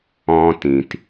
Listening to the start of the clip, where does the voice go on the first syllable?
high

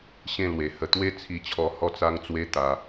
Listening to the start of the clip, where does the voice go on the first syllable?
falling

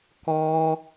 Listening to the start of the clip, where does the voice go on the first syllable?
high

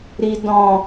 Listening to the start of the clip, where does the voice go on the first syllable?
low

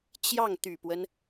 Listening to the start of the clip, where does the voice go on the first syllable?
falling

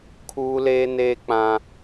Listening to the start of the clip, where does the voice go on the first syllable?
high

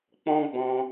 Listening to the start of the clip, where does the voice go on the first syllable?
high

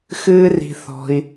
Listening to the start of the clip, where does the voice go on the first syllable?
high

